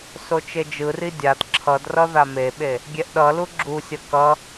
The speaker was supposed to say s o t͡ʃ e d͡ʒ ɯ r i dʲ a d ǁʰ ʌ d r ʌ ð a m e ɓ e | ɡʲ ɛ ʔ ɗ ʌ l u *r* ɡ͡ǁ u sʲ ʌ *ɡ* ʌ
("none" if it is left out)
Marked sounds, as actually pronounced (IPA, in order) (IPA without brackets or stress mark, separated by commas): none, k